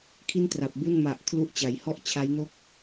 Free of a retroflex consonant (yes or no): yes